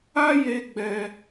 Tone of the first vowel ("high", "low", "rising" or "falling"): high